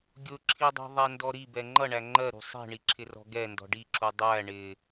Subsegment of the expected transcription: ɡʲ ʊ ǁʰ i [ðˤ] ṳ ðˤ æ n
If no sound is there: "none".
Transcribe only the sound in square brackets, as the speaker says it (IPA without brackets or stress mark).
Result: dˤ